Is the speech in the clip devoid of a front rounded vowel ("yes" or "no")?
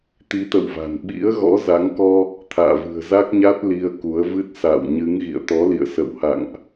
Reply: yes